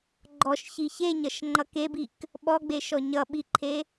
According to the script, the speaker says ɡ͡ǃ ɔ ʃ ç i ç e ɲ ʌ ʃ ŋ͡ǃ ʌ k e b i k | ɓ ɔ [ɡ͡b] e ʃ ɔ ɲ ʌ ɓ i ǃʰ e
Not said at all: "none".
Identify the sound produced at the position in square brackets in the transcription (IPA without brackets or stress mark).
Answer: ɡ͡b